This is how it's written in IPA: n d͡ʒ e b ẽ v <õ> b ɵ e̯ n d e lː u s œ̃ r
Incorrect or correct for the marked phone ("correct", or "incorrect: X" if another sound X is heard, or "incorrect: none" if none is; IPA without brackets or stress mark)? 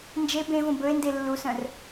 correct